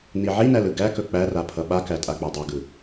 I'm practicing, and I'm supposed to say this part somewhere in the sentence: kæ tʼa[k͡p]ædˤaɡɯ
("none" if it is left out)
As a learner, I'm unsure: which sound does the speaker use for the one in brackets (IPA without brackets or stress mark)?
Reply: k͡p